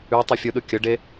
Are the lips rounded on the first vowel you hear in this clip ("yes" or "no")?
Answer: yes